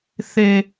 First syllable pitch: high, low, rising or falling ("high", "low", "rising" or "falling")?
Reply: low